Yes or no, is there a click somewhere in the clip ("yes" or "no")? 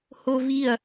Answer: no